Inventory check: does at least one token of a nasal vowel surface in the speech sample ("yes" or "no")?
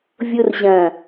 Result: yes